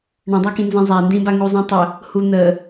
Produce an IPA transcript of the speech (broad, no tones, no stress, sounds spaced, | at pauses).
ɳ ə̃ dˤ æ k ĩ n z ĩ zˤ æ n d ĩ b a ŋ u zˤ ĩ tˤ ə | h u n̪ ə